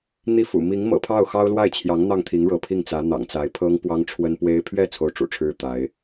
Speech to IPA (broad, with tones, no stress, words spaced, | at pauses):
n̪i˥˩fṵ˨˩ mi˧˥ŋmɤ̰˨˩pʰɑ˥˩ʊ̯ xɑ˥ʊ̯lwa˥˩ɪ̯t͡ɕʰjɑ˧˥ŋ n̪ɑ˥˩ŋ t̪ʰi˧˥ŋɻɤ˧˥ pʰi˥˩ŋt͡sä˧˥n̪ɑ̰˨˩ŋt͡sa˧˥ɪ̯ pʰɤ˥ŋpwɑ˥ŋʈ͡ʂʰwə˥npwe˥ɪ̯ pʰɥɛ˥˧ t͡sʰo˥˩ʊ̯ʈ͡ʂṵ˨˩ʈ͡ʂʰɻ̩˥ t̪a˧˥ɪ̯